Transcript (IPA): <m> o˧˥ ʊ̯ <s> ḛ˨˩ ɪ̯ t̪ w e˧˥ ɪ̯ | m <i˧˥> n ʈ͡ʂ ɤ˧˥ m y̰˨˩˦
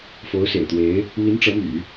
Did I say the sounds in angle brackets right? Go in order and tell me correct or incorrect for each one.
incorrect, correct, correct

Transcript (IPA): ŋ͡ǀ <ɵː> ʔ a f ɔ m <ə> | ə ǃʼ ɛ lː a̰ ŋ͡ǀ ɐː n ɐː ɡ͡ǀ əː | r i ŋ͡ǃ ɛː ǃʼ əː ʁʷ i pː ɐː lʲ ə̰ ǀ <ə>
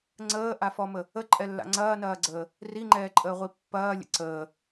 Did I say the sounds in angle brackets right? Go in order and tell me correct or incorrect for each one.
incorrect, correct, incorrect

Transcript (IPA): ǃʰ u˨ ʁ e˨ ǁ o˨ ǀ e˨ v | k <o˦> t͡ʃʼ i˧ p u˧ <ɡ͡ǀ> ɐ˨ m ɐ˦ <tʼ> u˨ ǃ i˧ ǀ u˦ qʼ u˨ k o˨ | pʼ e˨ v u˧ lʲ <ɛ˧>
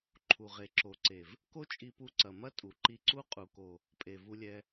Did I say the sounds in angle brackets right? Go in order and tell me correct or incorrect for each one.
correct, incorrect, correct, correct

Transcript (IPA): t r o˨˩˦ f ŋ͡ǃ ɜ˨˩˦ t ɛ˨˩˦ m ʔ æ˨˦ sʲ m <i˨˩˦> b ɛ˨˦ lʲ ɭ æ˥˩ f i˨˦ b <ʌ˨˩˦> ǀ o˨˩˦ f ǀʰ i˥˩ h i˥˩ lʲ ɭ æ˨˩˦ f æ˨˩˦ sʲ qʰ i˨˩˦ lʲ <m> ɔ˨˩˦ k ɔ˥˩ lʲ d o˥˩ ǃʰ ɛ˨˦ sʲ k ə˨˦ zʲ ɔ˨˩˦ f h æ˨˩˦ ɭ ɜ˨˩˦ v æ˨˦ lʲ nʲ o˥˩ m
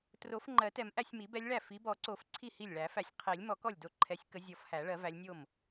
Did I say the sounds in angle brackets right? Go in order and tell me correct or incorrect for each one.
correct, incorrect, correct

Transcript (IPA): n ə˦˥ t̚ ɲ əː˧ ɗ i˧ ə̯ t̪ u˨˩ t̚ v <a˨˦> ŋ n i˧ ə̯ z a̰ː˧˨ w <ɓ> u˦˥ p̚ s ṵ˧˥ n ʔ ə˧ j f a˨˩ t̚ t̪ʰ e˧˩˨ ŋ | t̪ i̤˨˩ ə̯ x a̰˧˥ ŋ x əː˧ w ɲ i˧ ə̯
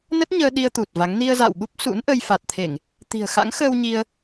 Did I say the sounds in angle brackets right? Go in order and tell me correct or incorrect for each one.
correct, correct

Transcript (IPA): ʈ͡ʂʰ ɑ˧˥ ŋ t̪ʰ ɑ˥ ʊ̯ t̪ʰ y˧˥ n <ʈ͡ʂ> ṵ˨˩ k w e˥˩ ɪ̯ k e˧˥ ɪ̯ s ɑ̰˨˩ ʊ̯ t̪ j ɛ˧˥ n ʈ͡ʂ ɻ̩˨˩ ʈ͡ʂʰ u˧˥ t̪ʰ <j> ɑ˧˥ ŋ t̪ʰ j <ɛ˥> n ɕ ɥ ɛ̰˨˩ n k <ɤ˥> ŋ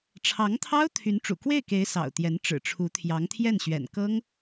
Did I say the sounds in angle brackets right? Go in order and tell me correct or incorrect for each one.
correct, correct, incorrect, correct

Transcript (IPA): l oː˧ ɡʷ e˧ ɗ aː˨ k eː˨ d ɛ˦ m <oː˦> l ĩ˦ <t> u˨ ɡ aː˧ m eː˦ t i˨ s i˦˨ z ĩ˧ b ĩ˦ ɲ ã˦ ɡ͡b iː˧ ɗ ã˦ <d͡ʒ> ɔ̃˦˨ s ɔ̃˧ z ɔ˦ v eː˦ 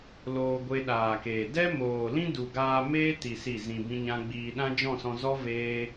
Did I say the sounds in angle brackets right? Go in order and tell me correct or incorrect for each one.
incorrect, incorrect, correct

